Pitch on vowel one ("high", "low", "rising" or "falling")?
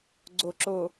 low